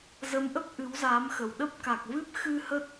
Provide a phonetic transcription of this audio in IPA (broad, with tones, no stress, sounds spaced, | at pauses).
z ə˨˦ m ʔ ə˦˥ p̚ ʔ ɨ˨˦ w z aː˨˦ m x ə˨˩ w ɗ ə˦˥ p̚ k a˨˩ k̚ v ɨ˦˥ p̚ x ɨ˧ h ə˦˥ t̚